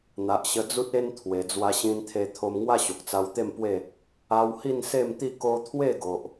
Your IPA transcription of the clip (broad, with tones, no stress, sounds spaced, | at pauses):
n̪ a˨ ʔ ɕ ə˧ d͡z u˦ t̚ e˦ n t̪ʰ w e˨˩ d͡z w a˧ ɕ ĩ˧ n t̪ʰ e˧ t̪ʰ o˧ m ŋ w a˥˧ ɕ o˨ k̚ t͡s a˧ w t̪ e˥˧ m p w e˥˧ | a˧ w h i˥˧ n s e˥˧ m t̪ i˥˧ k o˦ t̪ʰ w e˥˧ ɡ o˨ ʔ